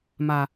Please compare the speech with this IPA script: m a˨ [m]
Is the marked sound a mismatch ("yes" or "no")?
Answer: yes